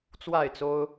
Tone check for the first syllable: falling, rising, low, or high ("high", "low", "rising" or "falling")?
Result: falling